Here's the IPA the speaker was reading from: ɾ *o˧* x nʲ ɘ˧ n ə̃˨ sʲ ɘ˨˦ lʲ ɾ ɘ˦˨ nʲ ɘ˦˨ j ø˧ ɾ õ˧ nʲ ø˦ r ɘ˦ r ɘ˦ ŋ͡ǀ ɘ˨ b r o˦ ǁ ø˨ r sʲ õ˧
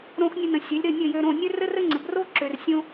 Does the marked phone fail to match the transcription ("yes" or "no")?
yes